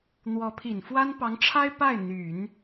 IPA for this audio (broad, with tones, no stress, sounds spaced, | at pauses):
n̪ w ɔ˧˥ pʰ i˨˩ n f w a˥ n p ɑ˧˥ ŋ ʈ͡ʂʰ a˥ ɪ̯ p a˥˩ ɪ̯ n̪ y˨˩˦ n